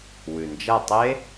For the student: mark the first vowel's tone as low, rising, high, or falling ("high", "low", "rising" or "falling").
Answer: low